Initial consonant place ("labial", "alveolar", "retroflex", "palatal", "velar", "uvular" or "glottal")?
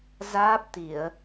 alveolar